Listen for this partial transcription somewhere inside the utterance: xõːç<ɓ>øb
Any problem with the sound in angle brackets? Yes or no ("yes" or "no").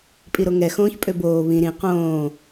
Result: yes